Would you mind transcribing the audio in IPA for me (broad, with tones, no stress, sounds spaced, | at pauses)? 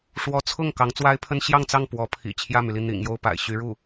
ʂ w ɔ˧˥ t͡sʰ ʊ˥˩ ŋ k ɑ˧˥ ŋ t͡s w a˥ ɪ̯ pʰ ə˥ n ɕ j ɑ˥˧ ŋ t͡s ɑ˥˩ ŋ p w ɔ˧˥ pʰ ḭ˨˩ t͡ɕʰ j ä˥˩ m y˩ l i˥˩ n̪ ḭ˨˩ ŋ j o˥˩ ʊ̯ p a̰˨˩ ɪ̯ ɕ y˧˥ ɻ u˥˩